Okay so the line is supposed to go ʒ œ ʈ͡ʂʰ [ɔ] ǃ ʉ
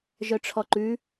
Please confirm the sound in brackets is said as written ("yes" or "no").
yes